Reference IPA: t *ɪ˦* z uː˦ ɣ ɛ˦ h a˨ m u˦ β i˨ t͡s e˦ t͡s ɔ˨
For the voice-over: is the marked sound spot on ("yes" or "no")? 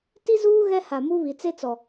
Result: no